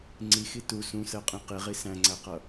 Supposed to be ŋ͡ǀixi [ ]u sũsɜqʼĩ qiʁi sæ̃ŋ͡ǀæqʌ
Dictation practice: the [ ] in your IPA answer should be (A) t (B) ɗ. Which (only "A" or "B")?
A